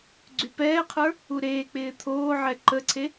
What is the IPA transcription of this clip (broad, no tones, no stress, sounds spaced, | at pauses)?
ɡ͡ǀ y p ɛː qʰ ə˞ | u ɾ eː k͡p ɪː t̪ʰ oː ʕ ɛ ǃ ə ǀʰ e